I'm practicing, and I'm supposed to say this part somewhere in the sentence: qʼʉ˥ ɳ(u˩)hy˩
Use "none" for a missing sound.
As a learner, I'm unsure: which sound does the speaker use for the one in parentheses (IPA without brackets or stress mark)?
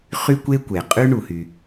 u˩